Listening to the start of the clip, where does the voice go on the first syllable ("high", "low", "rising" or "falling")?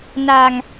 low